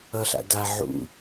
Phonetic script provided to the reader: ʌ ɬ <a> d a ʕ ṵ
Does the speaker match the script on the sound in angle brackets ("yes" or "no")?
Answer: no